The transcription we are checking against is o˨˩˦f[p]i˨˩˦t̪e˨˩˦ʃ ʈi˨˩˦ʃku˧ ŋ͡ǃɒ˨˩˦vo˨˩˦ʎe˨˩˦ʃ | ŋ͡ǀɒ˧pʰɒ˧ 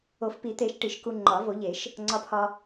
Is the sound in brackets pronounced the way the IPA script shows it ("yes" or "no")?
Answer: yes